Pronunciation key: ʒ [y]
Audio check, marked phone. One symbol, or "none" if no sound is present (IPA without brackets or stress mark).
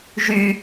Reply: y